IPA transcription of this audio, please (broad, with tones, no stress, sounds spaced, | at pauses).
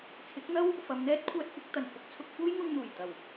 t͡sʰ ɪ˨˥ k̚ n̪ ɐ˥ w | f ɐ˨˧ m n̪ ɛː˥ t̚ kʷʰ œː˧ t̚ kʷ ɐ˨˥ k̚ t̪ ɐ˨˩ n f ʊ˧ k̚ t͡sʰ ʊ˧ k̚ f uː˥ j ŋ ʊ˧ ŋ n̪ uː˨˩ j t̪ ɐ˨˩ w